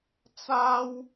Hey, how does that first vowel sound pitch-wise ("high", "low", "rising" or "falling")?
high